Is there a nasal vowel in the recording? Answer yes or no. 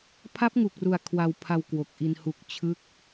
no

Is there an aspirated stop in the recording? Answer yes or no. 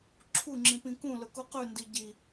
yes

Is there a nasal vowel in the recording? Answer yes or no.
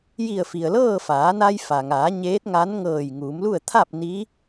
no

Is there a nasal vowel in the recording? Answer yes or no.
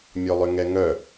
no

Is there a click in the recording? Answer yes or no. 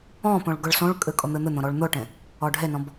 no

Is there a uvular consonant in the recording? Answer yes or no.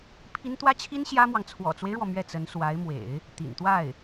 no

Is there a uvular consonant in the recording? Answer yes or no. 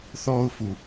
no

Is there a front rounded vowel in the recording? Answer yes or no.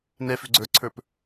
yes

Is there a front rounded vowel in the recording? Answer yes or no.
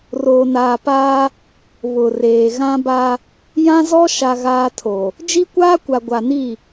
no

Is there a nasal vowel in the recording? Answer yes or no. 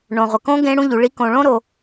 yes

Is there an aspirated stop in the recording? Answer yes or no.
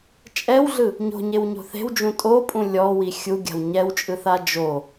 no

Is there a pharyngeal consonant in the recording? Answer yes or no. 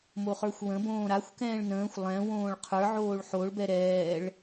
yes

